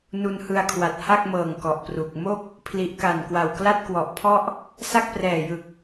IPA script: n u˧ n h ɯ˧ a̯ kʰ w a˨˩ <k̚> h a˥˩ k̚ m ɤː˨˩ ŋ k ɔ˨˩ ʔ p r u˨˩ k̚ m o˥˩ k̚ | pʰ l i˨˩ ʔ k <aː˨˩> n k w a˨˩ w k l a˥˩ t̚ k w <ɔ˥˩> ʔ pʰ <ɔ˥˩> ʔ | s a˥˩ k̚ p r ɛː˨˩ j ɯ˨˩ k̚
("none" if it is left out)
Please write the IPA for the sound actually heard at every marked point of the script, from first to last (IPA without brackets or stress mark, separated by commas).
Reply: t̚, a˨˩, ɔ˨˩, ɔ˥˩